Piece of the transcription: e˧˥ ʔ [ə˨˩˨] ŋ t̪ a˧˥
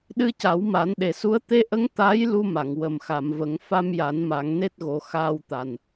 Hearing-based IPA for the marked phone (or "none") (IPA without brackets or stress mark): ə˧˥